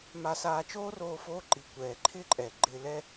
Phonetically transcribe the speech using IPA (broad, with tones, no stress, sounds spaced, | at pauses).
m a˧ s aː˧ t͡ʃ oː˦ r oː˧ f oː˧ ǃ i˨ kʷ ɛː˨ ǃʰ ɪː˦ ǃʼ ɛː˨ ɡ͡ǃ ɪː˧ l ɛ˦